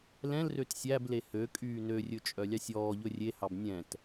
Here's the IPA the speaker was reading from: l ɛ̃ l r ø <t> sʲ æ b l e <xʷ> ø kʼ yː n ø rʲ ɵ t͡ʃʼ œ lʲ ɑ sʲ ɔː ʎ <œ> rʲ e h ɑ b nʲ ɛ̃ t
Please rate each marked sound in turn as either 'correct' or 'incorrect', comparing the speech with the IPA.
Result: correct, incorrect: h, incorrect: ɵ

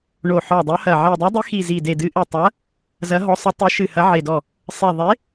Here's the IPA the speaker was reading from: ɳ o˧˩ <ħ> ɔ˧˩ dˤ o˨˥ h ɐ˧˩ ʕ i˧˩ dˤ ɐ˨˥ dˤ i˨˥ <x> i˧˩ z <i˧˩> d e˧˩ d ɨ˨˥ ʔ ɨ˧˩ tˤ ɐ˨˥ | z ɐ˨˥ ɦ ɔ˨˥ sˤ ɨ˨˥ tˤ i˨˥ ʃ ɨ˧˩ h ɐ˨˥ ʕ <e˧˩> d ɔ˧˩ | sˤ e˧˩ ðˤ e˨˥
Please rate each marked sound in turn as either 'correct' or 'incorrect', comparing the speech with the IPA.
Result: correct, correct, correct, correct

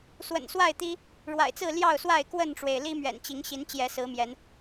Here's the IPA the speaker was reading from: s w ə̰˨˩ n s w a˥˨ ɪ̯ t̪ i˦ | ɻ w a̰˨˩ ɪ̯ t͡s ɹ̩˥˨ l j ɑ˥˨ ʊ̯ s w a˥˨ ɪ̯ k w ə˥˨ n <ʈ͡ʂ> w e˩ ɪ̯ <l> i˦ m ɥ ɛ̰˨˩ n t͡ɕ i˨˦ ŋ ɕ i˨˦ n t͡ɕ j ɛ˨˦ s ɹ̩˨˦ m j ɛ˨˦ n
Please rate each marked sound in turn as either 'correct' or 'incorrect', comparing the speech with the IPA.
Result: correct, correct

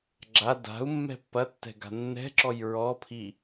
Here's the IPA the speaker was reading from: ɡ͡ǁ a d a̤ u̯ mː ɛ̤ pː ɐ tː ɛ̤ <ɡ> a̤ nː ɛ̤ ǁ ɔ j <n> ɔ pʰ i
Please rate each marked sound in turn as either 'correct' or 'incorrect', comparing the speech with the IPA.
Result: correct, incorrect: ɹ

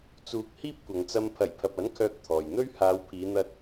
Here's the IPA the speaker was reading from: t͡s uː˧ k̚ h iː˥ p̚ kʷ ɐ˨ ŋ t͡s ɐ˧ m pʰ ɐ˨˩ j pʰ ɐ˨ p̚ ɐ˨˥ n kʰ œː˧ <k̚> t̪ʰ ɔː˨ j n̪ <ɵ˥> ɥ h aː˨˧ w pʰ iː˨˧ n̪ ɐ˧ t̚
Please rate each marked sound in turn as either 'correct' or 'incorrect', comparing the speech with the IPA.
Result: correct, correct

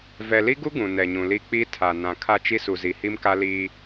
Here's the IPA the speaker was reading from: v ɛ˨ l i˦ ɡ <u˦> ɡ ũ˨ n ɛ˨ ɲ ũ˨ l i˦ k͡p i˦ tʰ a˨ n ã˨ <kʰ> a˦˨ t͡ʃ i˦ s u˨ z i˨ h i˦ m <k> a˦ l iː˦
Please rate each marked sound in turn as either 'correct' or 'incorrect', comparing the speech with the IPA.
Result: correct, correct, correct

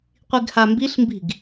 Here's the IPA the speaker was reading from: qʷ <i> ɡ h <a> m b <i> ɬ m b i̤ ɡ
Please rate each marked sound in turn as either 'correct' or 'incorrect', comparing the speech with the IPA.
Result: correct, correct, correct

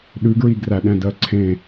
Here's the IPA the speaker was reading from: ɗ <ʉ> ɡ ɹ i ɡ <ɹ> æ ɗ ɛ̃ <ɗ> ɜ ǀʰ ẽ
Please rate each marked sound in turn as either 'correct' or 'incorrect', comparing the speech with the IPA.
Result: correct, incorrect: r, incorrect: d

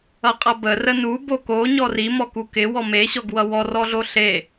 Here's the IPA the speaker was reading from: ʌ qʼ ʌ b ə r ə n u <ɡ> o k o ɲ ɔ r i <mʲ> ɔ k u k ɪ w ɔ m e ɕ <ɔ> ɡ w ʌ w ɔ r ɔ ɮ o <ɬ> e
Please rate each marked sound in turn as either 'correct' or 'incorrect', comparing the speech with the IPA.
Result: incorrect: b, incorrect: m, correct, correct

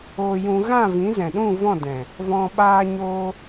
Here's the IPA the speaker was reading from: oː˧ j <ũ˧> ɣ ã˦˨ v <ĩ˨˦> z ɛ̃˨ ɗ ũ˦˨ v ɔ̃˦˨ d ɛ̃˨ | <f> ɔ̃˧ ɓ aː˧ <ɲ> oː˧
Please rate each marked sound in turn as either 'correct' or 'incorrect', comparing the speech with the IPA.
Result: correct, correct, incorrect: v, correct

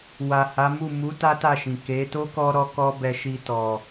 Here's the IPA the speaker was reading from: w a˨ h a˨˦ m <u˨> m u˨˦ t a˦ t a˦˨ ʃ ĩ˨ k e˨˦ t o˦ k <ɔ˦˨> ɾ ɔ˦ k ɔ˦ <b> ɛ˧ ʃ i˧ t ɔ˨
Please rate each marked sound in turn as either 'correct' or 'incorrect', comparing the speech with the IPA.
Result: incorrect: u˦˨, incorrect: ɔ˧, correct

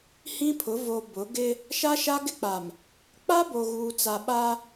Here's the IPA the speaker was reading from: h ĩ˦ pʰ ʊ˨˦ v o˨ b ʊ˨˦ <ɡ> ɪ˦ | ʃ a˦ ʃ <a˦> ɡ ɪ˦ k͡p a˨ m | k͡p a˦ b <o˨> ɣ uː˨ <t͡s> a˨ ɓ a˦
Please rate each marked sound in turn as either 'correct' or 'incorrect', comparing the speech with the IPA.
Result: correct, correct, correct, correct

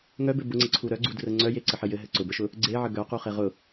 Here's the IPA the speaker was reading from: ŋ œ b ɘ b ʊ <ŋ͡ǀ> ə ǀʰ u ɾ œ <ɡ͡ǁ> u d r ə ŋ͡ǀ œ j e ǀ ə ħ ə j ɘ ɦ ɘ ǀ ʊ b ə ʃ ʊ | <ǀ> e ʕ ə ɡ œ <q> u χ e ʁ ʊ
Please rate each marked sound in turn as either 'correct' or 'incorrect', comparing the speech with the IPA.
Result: correct, incorrect: ɡ͡ǀ, incorrect: ɡ͡ǀ, correct

